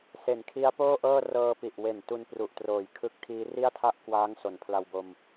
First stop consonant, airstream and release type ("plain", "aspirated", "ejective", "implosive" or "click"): aspirated